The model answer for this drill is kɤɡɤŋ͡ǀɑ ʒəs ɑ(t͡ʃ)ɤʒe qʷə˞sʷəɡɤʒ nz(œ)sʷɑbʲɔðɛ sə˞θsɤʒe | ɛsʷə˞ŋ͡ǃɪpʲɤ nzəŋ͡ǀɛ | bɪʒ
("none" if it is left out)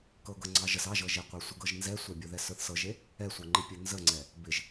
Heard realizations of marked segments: ʒ, ɛ

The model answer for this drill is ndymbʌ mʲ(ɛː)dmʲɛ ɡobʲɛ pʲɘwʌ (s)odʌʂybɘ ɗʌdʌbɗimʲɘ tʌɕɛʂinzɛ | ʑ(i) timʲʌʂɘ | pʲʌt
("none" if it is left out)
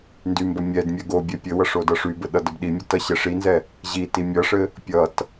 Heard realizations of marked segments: ɛ, ʂ, i

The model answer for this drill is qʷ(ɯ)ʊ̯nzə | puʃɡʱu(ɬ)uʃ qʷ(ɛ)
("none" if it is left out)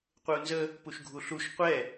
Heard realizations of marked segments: ɯ, ɬ, ɛ

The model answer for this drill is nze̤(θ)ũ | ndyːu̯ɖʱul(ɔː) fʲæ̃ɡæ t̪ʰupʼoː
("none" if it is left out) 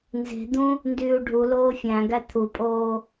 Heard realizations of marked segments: d̪, oː

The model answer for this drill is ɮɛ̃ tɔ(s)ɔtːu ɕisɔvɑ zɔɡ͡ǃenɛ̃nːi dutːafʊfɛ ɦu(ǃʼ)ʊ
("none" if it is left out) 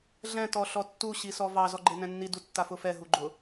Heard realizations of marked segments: ɬ, ɡ͡ǃ

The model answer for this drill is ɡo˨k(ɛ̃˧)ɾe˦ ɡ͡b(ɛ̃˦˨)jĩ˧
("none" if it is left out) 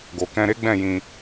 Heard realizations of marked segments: ɛ̃˧, ɛ̃˦˨

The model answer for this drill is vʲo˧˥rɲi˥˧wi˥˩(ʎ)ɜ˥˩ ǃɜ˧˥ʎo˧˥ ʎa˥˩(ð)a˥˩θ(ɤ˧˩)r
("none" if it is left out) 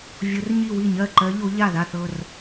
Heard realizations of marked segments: ɲ, ð, ɤ˧˩

